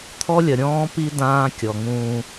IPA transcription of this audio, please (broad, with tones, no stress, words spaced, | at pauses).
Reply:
t̪ʰɔ˦lʲɐ˨ ɾʲɔ̃ː˦pi˦ dãː˦kʲɔ˨ŋũː˦